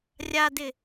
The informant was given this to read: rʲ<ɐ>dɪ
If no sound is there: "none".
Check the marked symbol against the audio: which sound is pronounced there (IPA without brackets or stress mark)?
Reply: a